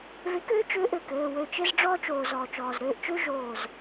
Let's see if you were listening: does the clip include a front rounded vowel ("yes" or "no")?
yes